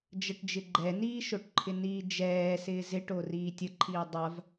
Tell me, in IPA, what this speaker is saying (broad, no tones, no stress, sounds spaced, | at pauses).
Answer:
d͡ʒ ə ʈ d͡ʒ ɪ ɡ͡ǃ ɛ n iː ʃ o ʈ ǃʰ ɪ n iː d͡ʒ ɛː s ɪː z ɪ ʈ o r iː tʲ ə ǃʰ iː dˤ a v